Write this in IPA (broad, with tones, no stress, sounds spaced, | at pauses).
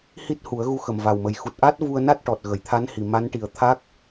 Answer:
h i˦˥ t̚ h u˨˩˦ ə̯ ɣ u˧ x ə˨˩ m v a˨˩ w m ə˨˩ j x u˨˩ t̚ ʔ a˦˥ t̚ v u˧ ə̯ n a˦˥ t̚ ʈ ɔ˨˩ t̚ ɣ ə˨˩˨ j t̪ʰ a˧˥ n h i˨˩ m a˧˥ n ʈ i˨˩ ə̯ t̪ʰ a˦˥ k̚